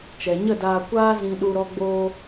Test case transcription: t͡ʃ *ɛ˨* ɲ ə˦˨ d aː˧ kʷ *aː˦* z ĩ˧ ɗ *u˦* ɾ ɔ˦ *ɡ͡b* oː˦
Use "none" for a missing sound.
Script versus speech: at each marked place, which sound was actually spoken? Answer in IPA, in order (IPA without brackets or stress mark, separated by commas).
ɛ˨, aː˦, u˦, ɡ͡b